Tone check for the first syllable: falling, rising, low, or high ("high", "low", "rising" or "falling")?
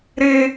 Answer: high